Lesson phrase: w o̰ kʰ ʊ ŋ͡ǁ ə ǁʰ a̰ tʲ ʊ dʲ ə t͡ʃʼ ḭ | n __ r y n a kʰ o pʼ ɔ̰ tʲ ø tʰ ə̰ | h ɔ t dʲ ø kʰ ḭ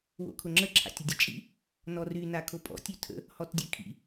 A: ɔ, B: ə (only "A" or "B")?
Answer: A